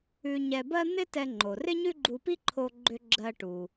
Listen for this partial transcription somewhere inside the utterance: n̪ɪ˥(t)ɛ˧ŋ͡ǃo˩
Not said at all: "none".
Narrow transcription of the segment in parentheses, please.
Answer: t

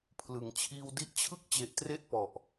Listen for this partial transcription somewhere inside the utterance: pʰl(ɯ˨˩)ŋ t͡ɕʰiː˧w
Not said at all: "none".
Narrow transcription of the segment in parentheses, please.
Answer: ɯ˨˩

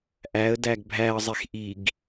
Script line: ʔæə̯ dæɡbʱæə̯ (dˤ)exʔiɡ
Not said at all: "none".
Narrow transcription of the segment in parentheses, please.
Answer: zˤ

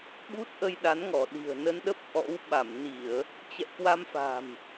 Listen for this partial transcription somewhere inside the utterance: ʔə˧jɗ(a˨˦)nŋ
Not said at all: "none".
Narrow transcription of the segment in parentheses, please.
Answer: a˨˦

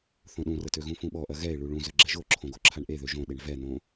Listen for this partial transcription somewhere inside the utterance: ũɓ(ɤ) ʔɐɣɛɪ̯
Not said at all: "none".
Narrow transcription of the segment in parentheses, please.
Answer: ɔ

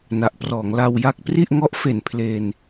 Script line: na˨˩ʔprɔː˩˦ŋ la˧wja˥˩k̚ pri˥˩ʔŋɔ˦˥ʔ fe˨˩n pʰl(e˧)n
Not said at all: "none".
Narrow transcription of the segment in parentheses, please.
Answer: e˧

